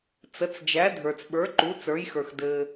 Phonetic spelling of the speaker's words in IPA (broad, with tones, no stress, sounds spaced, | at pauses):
t͡s ə˩˥ t͡s d͡ʒ æ˩˥ dʱ ə˞˩ t͡s ɓ ə˞˩˥ ǃ u˩˥ t͡s ə˞˩˥ j x ə˞˩ x d ɘ˩